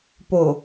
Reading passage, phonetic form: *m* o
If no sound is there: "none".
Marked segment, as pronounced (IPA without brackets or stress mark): p